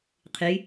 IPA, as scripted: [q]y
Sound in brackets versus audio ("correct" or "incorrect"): incorrect